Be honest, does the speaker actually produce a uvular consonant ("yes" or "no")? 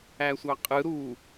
yes